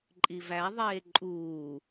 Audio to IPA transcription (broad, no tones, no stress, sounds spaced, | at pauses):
ǃʼ i v æ ðˤ eː ǃʼ uː